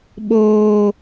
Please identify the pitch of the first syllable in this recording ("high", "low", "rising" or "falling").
low